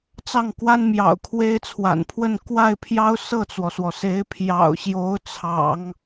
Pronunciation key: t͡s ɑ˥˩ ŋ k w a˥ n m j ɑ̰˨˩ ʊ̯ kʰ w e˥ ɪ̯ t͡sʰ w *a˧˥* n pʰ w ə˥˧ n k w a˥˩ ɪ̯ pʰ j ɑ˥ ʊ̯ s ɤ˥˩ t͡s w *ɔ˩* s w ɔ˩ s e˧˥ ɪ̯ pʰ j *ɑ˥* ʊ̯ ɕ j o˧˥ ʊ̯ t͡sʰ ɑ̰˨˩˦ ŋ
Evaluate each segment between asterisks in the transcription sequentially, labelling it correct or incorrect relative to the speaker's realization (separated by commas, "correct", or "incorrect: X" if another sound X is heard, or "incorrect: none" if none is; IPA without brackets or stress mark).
incorrect: a̰˨˩, correct, incorrect: ɑ̰˨˩